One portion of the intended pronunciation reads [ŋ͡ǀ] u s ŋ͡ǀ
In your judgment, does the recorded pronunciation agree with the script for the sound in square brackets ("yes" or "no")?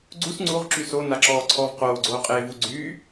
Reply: no